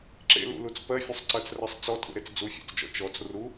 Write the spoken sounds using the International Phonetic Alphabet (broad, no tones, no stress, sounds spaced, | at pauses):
ǁ ḛ l ṵ l u t͡s p ɜ fʲ ɵ sˤ ǀ ɜ t͡s r ɜ sˤ t͡s ɔ tʼ ṵ ɾ e t͡s d͡z u fʲ ɔ̰ t͡s d͡ʒ ɔ̰ t͡ʃ ɔ t͡s r u